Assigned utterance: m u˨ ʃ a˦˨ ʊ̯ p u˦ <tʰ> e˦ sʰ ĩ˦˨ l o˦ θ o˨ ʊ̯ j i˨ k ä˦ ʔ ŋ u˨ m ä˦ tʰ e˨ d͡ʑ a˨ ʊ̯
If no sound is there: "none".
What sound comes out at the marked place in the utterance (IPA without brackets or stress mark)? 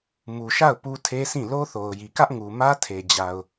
tʰ